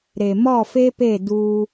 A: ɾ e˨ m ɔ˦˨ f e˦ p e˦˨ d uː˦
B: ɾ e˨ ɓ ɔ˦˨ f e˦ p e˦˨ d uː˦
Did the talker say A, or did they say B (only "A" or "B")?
A